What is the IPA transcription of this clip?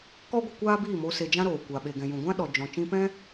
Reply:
kɔ˦ɡʷə˧ kʷaː˦biː˦˨mo˧ se˧d͡ʒã˦ɾoː˨ kʷa˨ ɓe˨ɡɛ̃˨jũ˨ɡʷã˦ ɗɔ˨d͡ʒɔ̃˨ t͡ʃĩ˧pɛ̃˦

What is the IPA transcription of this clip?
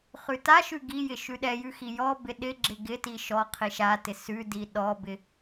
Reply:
χʉtaʃʉ ɡijɪ ʃʉɗɛjʉ xijɔbɪ ɗɪɡ͡ǁɪ ɡɪti ʃɔqʰi ʃatɪ sʉdi ɗɔbɪ

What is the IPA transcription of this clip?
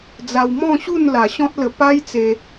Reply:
d͡za˧wmɔ̃˥˧ɕu˥˧n la˨˩ɕɔ̃˦t̚lə˧ pa˦j t͡se˧

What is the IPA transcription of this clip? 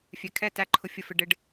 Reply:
fʲɛ˨kʰɛ˦˨ tæ˦ ǃʰʊ˦ fʲə˦fɪ˦ ɖɪ˦ɖ

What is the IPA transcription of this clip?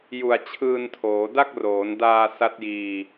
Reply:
ju˨˩a̯t͡ɕʰɯː˧ntʰoː˩˦ da˥˩k̚roː˩˦ndaː˧ sa˦˥t̚jiː˧

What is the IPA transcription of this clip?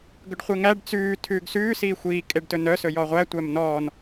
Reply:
ɡɵɖχʷeŋæɖ t͡sʉː tʰʉːɡsʉː siːxʷiː kʼeɖtɵnœ sɵjɔʁʷæ tʷæmnɔːn

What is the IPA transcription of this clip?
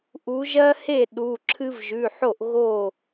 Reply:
ʔu˩˧ʒɜ˦he˥˩ ɗu˩˧˩ ǁʰɨ˦vʒʉ˩˧˩ħo˥˩ʔ ɣo˥˩

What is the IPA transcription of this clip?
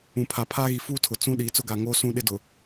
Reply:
ũ˨pʰa˨ pʰaː˦ɣi˨ fuː˦tʰʊ˨ t͡sũ˦ ɗiː˨t͡sʊ˦ɡa˨ŋoː˦ sũ˦ɗɪ˦dʊ˨

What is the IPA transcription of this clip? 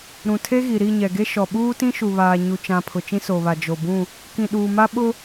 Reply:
ɾũ˨tʰe˦ɣi˨ ɾi˦˨ɲɛ˨ɡe˦ ʃɔ˨ɓuː˦tĩ˦ ʃu˨βaː˨ ɲu˨t͡ʃã˨ pʰʊ˨t͡ʃĩ˦soː˨βa˨ d͡ʒo˨bũ˦˨ | kĩ˨ɗuː˨ma˦ɓʊ˦

